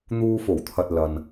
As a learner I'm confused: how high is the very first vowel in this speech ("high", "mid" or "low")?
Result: high